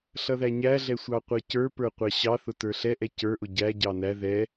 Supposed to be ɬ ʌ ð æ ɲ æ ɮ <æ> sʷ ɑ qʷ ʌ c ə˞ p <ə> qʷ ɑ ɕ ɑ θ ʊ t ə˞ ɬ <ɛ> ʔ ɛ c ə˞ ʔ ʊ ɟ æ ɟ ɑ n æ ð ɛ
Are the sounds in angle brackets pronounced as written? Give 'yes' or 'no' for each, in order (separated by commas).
no, no, yes